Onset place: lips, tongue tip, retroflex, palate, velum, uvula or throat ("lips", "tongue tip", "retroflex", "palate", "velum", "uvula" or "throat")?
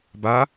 lips